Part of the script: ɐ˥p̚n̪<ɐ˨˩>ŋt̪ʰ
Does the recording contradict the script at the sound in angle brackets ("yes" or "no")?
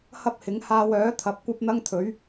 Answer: yes